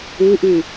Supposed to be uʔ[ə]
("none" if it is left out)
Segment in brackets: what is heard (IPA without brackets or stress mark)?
ʉ